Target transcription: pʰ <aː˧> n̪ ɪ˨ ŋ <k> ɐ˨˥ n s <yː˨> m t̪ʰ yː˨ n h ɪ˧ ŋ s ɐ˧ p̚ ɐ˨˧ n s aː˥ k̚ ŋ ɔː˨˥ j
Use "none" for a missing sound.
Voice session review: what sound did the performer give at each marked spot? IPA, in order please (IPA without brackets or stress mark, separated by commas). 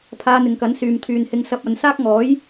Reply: aː˧, k, yː˨